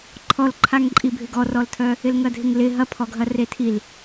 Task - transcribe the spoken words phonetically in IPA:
ǃʰ ɔ l ǃʰ a ŋ ǃʼ i bʱ ɪ ɡ ɔ r ɔ l tʰ œ | ɪ l ŋ ɐ dʱ ɪ ŋ l ɪ ɦ ɐ pʰ ɔ ɡʱ ɐ r e tʰ i l

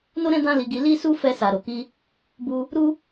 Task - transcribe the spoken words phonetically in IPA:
n o˦ ɾ ɛ̃˦ d ã˦ l i˧ ɡ i˧ l i˦ s u˦ f ɛ˧ s a˨ ɾ o˨ k i˧ | b u˧ | ɾ u˦

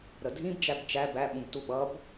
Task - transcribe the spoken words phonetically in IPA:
ɾ ə dʱ ĩ b d͡ʒ æ b t͡ʃ æ b æ ɓ ũ b t u ɓ ʌ b

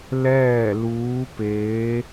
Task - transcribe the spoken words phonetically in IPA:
l ɛː˥˨ l uː˧˥ p eː˧˥

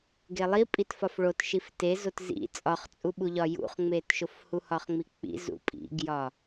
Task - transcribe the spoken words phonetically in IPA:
ɡ e lˠ i pʼ i t f ɒ f ɭ o t ʃ i f t e z o t z ḭ t͡sʼ ɒ χ t͡sʼ u ɓ u ʎ ɒ j ṵ χ ŋ͡m e t ʃ o f h u h ɒ χ ŋ͡m i k͡p ḭ z ṵ pʼ ḭ ɡ j ɒ

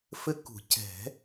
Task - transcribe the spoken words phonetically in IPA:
f ɘ˦ k ṳ˨˩˦ c ɛ̤˨˩˦

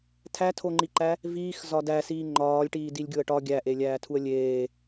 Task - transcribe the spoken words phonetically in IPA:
tʰ æ tʰ o ŋ͡ǃ i ǃ æ | v iː x z ɒ d æ s iː ŋ͡ǃ ɒː lʲ ʈ iː d i lʲ ɡʲ o ə̯ ʈ ɒ ɡʲ æ ʔ e lʲ æː tʰ u ə̯ lʲ eː

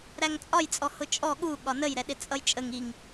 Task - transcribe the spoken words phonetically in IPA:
ɾ æ ŋ t͡sʼ ɒ j t͡sʼ ɔ h ʊ t͡ʃʼ ɔ ɠ u ɠ ɒ n ə j ɾ ɛ ɗ ɪ t͡sʼ ʌ j t͡ʃʼ ə ŋ i ŋ

